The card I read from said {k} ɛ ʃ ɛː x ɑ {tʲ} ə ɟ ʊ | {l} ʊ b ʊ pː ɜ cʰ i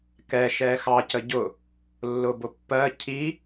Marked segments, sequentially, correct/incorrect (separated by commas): correct, incorrect, incorrect